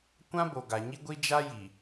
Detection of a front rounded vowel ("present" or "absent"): absent